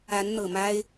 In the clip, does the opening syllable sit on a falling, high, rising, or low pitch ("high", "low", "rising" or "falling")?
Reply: rising